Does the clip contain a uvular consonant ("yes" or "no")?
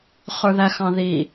yes